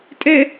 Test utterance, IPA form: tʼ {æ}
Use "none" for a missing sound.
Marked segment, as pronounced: ɛ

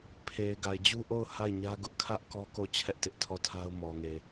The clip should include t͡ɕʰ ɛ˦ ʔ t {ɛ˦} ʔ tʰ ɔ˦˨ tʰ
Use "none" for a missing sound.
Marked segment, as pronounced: ɪ˦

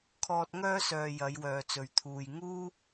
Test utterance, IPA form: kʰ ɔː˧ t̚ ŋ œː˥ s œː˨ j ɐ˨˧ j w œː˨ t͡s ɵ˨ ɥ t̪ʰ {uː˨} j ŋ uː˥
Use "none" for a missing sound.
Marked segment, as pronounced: uː˨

